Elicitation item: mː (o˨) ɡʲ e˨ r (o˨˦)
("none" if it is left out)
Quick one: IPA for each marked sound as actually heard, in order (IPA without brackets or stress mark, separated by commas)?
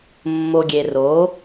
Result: o˨, o˨˦